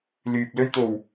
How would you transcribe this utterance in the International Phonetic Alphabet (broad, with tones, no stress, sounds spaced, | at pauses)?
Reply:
l yː˨ p̚ l ɵ˥ ɥ t̪ o˨˩ w